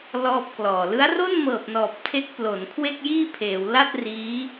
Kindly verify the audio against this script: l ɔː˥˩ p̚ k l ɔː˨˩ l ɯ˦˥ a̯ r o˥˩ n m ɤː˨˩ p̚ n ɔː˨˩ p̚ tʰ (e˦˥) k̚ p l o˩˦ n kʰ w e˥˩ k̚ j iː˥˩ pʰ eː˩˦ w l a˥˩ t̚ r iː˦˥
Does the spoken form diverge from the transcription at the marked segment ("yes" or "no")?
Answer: no